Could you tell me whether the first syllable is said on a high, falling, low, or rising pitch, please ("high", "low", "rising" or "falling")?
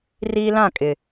high